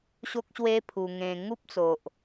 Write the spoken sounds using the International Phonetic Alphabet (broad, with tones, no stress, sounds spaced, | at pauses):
ɕ o˦ k̚ ɕ w e˦ pʰ u˨˩ ŋ ẽ˨˩ ŋ u˦ p̚ t͡s o˨ ʔ